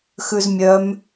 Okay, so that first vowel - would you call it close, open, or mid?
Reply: close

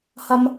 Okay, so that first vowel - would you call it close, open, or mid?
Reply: open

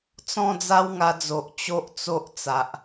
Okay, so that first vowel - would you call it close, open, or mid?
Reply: mid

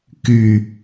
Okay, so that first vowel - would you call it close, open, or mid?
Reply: close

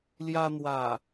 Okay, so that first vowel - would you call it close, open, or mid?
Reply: open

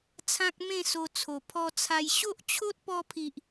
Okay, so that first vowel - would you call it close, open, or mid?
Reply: open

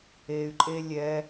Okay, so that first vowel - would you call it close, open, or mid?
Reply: mid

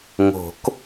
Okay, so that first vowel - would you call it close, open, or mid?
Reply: mid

